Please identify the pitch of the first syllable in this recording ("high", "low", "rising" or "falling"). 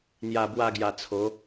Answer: low